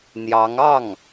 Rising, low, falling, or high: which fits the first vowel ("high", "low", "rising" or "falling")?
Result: rising